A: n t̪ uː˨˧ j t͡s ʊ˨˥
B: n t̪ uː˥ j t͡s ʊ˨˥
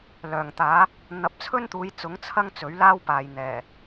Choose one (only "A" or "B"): A